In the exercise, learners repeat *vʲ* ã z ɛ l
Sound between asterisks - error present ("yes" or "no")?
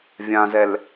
no